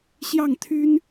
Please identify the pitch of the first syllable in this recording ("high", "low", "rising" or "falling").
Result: falling